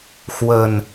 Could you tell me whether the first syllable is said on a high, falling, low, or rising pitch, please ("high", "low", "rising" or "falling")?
low